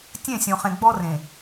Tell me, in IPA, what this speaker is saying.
tʲ ẽ˦˨ sʲ õ˨ χ ẽ˨ ɡ͡b ɔ˦ r ẽ˨

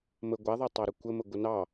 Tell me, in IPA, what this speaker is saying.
m ə ɡʷ a ðˤ a tˤ ɑ ɾ ə kʷ ə m ə ɡʷ ə n ɑ

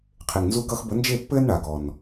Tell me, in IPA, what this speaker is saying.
qʰ e˨ ŋ n z u˧ ɡ ʌ˦ x b ə˨˦ n d͡ʒ e˦˨ pː ɘː˦ n ɳ a˨ ɡ ɔ˨ n

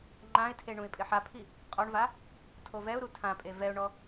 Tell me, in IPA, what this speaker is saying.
ŋ͡ǃ ã ɪ̯ tʰ e ɳ ũ ɪ̯ pʼ ɪ ħ a pʰ i | qʼ ɔ ɳ v a | tʰ o v ɛ ʊ̯ ɾ u tʰ ã pʼ e v ɛ ʊ̯ ɳ ɔ

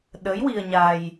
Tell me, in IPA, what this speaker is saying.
ɗ ə˧˥ j w i˧ ə̯ ɲ a˧ j

